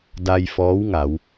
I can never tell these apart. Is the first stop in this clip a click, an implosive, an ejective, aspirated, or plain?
plain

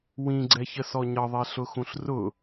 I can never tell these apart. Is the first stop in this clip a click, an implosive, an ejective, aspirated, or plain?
click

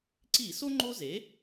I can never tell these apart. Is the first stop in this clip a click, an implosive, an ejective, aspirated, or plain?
click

